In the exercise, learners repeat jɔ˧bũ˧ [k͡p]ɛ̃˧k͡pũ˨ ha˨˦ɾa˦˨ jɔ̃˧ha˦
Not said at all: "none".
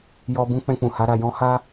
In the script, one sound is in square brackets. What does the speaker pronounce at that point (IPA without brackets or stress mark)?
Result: k͡p